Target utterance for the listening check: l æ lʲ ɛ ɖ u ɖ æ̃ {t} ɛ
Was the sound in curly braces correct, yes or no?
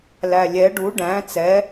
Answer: no